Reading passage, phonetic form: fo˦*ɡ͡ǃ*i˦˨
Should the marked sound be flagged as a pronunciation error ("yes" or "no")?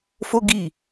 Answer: yes